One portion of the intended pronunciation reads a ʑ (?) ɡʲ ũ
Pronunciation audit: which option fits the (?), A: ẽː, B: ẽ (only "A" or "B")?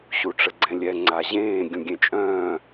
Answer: A